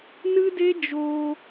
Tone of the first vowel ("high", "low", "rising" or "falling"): high